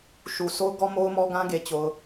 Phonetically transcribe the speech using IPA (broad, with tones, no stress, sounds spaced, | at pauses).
ʃ u˨ s o˦ ʊ̯ ɡ ɔ˦ m o˦ ʊ̯ m ɔ˦ ɡ ã˦ ɡ e˨ t͡ɕ o˨ ʊ̯